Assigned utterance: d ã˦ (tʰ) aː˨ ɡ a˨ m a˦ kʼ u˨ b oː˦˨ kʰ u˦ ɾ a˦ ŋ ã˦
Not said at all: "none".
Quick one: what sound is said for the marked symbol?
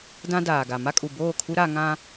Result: d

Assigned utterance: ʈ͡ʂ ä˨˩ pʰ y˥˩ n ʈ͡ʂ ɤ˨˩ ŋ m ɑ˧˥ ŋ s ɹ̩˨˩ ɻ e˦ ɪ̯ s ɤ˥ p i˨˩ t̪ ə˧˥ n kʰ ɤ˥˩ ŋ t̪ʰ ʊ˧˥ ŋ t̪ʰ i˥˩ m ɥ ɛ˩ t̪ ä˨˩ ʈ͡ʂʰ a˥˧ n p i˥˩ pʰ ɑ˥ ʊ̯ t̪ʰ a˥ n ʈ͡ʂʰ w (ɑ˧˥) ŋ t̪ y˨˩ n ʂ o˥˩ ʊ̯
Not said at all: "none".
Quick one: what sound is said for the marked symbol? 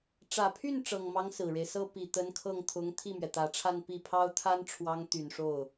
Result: ɑ˧˥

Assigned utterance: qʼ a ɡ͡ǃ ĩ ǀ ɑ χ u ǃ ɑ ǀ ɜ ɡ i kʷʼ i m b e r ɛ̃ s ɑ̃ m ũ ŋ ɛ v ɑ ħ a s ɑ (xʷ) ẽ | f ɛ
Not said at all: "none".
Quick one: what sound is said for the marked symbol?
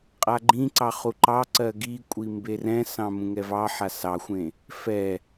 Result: xʷ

